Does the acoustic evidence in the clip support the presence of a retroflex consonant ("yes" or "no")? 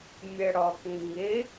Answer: yes